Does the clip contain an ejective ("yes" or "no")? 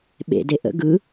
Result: no